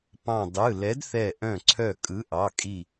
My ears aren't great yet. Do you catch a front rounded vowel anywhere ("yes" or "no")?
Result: yes